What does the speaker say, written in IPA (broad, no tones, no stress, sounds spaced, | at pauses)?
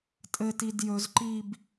tʼ ɘ t i d j ɵ z ǃ iː b